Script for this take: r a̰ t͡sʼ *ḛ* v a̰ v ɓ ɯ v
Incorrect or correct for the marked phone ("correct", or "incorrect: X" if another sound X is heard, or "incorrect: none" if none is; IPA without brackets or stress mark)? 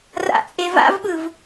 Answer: incorrect: e